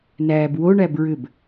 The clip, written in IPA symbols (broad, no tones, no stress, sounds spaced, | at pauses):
n æː b w o ɳ æ b ɹ ʏ b